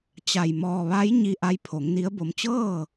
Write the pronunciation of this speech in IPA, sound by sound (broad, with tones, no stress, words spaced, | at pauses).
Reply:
t͡ɕa˧˩j mɔː˧˩ʋa˧˥j ɲi˧ ʔa˧˥jpʰo˩˧ŋni˧˥ə̯bo˧m t͡ɕɤː˥˨